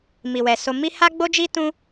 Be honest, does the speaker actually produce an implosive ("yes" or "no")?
no